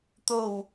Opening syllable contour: low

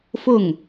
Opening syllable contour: falling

